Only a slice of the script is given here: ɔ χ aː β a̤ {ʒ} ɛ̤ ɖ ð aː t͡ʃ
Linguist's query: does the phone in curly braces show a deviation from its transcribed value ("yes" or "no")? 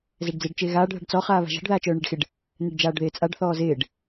no